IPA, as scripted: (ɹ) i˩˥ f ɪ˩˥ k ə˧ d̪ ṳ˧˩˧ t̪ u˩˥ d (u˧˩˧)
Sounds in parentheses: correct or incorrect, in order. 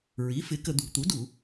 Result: correct, correct

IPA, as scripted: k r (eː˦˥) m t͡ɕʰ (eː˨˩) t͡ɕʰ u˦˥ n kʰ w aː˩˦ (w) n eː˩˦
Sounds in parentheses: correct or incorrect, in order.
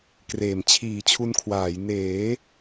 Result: incorrect, incorrect, incorrect

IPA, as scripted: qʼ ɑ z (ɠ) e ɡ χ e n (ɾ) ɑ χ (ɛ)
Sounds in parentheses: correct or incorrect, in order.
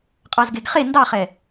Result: incorrect, incorrect, correct

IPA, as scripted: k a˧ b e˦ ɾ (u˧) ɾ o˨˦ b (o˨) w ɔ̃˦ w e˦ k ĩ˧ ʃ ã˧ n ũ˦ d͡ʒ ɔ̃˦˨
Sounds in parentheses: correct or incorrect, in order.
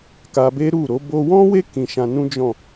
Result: incorrect, incorrect

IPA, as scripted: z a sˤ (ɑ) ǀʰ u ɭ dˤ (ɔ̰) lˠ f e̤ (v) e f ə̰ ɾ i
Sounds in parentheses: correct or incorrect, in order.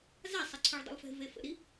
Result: incorrect, incorrect, correct

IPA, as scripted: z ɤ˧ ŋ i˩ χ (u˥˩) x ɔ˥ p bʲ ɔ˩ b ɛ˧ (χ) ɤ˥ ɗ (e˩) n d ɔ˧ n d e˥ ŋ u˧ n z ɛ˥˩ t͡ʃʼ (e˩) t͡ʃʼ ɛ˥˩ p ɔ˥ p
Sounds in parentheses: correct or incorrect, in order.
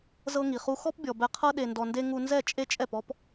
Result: incorrect, incorrect, incorrect, incorrect

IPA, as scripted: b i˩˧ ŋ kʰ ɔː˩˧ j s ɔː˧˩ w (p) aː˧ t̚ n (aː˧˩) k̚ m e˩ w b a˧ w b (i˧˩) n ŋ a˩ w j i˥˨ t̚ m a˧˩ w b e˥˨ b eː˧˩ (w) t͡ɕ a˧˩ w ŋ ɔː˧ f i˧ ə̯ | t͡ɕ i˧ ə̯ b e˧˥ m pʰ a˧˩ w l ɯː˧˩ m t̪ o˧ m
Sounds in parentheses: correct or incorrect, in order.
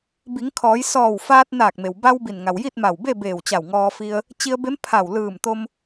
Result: incorrect, correct, correct, correct

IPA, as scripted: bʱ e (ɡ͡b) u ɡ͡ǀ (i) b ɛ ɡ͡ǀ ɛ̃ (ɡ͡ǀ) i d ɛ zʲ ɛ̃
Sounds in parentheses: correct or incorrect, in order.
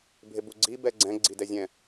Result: incorrect, correct, correct

